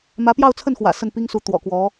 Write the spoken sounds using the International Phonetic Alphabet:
m ä˧˥ p j ɑ˥˧ ʊ̯ t͡sʰ ə˥˩ n x w ä̰˨˩ s ə˥˩ n p i˥ ŋ s u˧˥ t̪ w ɔ̰˨˩ k w ɔ˧˥

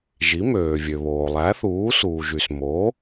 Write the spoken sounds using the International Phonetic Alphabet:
ʒ i˩˥ m øː˩ vʲ ø˩ β oː˩ lˠ æ˩˥ θ uː˩˥ s uː˩ ʒ y˩ s m o˩˥

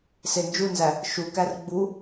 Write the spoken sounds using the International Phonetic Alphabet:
s e n d͡ʒ u n z æ | ʃ u k æ r ɡ͡b u

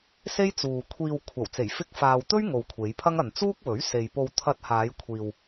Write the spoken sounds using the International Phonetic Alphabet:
s e˥ j t͡s uː˨ kʷʰ iː˧ w kʷʰ ɐ˨˩ w t͡s e˨˩ j f ɪ˧ k̚ f aː˨ w t̪ ɵ˥ ɥ ŋ o˨ w kʷʰ e˨˧ j pʰ ɐ˥ ŋ ɐ˨ n t͡s uː˥ k̚ w ɵ˨˥ ɥ s e˨ j p o˧ w t̪ʰ ɐ˧ t̚ h aː˨˧ j kʷʰ iː˨ w

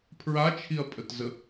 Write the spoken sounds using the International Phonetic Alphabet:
pʰ ɹ a t͡ʃʰ i ɐ̯ pʼ ə t z ə

